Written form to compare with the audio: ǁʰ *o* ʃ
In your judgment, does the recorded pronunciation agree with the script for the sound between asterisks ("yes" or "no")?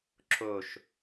yes